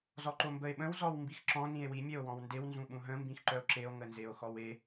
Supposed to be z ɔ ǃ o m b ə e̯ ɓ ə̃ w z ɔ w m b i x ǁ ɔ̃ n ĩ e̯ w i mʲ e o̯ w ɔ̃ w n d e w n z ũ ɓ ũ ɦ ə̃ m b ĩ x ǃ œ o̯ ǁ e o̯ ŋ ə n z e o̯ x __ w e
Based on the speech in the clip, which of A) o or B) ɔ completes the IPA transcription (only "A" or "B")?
B